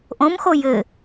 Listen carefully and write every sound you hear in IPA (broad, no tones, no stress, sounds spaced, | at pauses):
ʔ õ m x o j ɘ